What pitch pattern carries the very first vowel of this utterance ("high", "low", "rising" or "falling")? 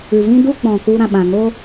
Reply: low